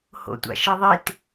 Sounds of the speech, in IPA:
h o̰ tʷ a̰ ʃ e ðˤ i t

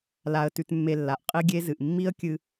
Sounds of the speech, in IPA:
l a˧ ə̯ t ʉ˧ t mː e˧ lː a˨ ʔ qʼ i˦ ɡʲ e˦ z ɨ˨ ʔ mː i˦ ə̯ kʲ ɨ˧

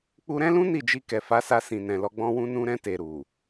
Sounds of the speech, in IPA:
k͡p u˧ ɾ ɛ̃˦ l ũ˦ n i˦˨ d͡ʒ i˧ k ɛ˨ f a˨˦ s a˧ s ĩ˨ n ɛ̃˨ l ɔ˧ ɡ͡b ɔ̃˧ w ũ˧ n ũ˧ ɾ ɛ̃˧ t e˨ ɾ u˨

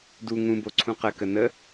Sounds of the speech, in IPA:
d u ŋ ũ b o ǀʰ ũ q ə k ə n ə

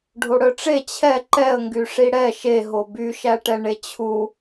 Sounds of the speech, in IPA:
ɖʱ o ɽ œ ʈ͡ʂ e t͡ɕʰ ɛ ǃ ɛ ə̯ ŋ ɡ y ʂ i ɽ ɛ ʃ e ɦ o b y ʃ æ ʈ ɛ ɳ e t͡ɕʰ u

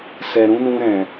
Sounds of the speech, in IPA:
s ɛ˨ ɾ ũ˨˦ n ũ˧ ɾ ɛ̃˨

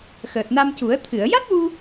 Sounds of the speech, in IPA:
x əː˨˩ t̚ n a˧ m c u˨˩˦ ə̯ t̪ʰ ɨ˨˩˨ ə̯ j a˦˥ t̚ w u˧

